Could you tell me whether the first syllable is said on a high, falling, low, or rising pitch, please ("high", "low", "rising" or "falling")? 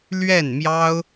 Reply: falling